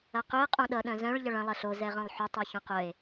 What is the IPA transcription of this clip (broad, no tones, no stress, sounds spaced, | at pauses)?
ɐ q ʏ e̯ qʼ õ ɗ ʌ ɗ œ̃ z œ̃ ɭ ʎ ɐ ɭ ɐ̃ lˠ ɐ ɬ o z ɛ ʁ œ̃ lˠ ħ ʏ tˤ i ç õ q œ e̯